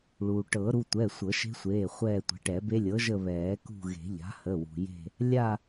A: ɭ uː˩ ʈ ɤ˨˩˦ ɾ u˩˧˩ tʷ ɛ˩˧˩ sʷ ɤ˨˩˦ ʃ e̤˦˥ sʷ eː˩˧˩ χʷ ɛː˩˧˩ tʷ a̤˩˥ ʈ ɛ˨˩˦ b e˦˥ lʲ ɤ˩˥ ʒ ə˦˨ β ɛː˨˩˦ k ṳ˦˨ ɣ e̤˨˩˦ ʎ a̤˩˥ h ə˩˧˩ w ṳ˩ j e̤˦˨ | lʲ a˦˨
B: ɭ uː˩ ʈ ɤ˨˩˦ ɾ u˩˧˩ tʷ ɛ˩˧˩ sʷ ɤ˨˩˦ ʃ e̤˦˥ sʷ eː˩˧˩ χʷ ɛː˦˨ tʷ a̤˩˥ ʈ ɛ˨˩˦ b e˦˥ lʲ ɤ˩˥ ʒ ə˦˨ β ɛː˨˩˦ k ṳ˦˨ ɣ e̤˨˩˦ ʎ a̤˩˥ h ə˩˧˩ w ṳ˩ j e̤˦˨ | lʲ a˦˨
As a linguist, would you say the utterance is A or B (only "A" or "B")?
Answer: B